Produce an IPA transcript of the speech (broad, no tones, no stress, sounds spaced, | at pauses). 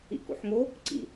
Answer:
ḭ k ṵ ħ ŋ o | ǀ ḭ